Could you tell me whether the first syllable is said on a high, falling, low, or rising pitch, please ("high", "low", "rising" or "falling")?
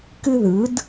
high